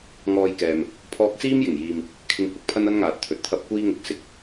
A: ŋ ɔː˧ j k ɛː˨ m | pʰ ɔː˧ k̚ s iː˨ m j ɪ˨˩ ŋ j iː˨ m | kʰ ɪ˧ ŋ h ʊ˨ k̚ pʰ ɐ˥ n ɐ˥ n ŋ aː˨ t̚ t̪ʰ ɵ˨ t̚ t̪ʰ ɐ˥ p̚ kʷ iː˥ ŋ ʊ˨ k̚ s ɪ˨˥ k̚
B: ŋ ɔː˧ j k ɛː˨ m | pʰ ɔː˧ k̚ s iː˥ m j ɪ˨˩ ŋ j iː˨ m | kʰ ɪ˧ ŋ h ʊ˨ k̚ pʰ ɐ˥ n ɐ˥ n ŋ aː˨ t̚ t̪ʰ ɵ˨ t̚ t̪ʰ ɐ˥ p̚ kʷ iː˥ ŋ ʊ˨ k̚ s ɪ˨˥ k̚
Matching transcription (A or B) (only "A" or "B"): B